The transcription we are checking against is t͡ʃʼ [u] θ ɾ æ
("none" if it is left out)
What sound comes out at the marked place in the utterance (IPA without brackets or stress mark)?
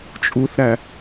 u